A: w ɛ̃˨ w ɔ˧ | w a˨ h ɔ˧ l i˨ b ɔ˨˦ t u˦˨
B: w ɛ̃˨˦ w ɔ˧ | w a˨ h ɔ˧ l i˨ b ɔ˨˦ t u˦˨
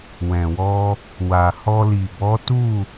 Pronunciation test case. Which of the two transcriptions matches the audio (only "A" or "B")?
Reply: A